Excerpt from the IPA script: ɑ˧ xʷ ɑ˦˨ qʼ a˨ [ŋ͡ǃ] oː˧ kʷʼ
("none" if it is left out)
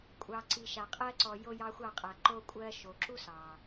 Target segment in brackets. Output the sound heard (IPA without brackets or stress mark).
ǃ